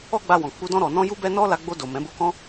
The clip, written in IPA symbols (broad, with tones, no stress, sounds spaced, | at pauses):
ɔ˦ ɡ͡b a˧ w ɔ̃˨ k͡p u˧ d ɔ̃˧ ɾ ɔ˨ n ɔ̃˧ j u˦ b ɛ˦ n ɔ˦ l a˧ ɡ͡b o˧ d o˨ m ɛ̃˨˦ b o˦ k ɔ̃˦